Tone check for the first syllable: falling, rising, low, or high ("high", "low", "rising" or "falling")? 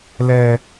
high